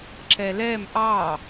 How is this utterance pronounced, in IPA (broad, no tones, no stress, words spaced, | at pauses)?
ǁɛlɛm ʔɑ